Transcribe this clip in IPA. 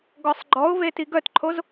ɡɔsˤɡ͡ǃɔʊ̯ve tiɡœtǃʰoz

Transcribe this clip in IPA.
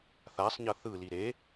θasˤɲʌ θɯli ɾe

